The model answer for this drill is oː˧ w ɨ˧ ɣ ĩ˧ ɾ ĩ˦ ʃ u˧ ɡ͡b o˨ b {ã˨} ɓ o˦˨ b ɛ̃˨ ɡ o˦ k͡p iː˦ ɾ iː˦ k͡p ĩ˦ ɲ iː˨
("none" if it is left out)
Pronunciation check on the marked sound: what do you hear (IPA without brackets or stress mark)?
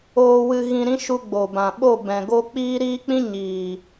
ã˨